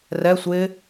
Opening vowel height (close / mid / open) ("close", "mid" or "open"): mid